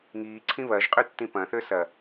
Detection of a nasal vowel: present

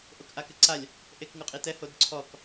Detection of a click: present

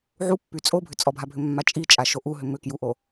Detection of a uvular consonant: absent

